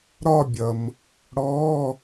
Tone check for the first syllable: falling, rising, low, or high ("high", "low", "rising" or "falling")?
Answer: falling